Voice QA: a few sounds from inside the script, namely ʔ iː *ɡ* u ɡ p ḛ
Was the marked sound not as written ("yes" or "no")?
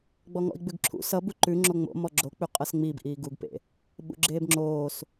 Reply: no